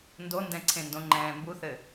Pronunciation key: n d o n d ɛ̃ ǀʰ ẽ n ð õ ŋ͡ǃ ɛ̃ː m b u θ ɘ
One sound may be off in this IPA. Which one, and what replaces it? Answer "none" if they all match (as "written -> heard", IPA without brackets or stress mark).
ð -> d